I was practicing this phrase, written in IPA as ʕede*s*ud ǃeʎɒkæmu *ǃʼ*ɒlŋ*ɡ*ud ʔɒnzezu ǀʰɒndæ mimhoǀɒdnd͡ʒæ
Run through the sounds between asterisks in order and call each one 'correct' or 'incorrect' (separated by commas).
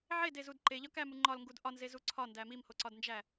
incorrect, incorrect, correct